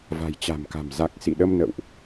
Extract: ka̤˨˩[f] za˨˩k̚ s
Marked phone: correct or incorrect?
incorrect